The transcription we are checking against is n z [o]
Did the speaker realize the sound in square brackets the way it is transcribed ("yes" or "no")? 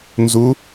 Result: no